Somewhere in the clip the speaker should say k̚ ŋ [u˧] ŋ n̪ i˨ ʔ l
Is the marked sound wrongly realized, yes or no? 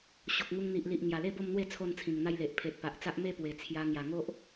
no